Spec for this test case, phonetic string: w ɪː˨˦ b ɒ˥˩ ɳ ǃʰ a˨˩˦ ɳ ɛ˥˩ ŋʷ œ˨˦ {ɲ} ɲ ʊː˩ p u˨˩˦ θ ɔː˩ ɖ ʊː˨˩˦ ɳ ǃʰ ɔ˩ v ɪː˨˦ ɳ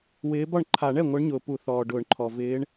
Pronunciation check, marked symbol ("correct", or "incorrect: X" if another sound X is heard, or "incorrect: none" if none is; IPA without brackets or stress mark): incorrect: ɳ